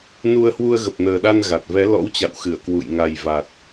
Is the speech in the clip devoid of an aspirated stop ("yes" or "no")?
yes